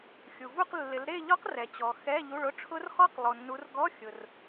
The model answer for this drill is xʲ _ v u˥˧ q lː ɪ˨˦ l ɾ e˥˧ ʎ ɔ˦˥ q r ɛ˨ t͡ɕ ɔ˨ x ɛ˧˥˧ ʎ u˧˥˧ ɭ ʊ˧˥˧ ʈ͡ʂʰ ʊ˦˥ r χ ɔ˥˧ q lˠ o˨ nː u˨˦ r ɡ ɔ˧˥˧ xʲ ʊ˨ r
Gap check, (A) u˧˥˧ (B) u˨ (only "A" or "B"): B